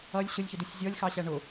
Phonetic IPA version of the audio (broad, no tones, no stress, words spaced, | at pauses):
ʌlʲ ɕʊlʲçʊdusʲ zʲɔlʲxɑɕæ ɳʊ